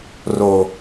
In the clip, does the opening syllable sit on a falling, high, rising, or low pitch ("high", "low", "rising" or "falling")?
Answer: low